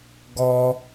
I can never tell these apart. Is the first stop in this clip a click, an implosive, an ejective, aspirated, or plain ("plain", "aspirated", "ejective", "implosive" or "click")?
plain